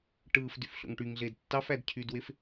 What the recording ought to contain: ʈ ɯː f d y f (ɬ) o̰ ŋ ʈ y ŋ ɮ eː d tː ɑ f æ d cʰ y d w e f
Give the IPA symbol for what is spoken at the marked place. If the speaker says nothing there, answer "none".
ɬ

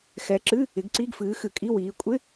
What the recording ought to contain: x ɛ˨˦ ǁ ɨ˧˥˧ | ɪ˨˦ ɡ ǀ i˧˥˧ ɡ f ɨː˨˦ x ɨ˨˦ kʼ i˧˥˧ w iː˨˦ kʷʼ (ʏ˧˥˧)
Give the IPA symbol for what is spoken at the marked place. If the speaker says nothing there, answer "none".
ɪ˧˥˧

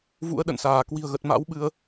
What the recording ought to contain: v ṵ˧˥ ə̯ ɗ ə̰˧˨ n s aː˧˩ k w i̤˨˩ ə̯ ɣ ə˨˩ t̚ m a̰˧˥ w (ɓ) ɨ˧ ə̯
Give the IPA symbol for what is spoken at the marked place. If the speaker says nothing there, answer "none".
ɓ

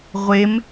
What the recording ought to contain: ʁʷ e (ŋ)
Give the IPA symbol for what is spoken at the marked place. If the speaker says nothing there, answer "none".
m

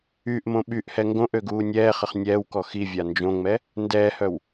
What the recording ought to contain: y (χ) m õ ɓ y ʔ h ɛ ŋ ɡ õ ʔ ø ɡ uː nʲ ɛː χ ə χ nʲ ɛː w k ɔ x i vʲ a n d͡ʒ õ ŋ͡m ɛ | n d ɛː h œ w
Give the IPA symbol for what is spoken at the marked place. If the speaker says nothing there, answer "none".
ʔ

